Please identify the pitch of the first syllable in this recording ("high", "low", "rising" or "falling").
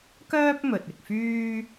high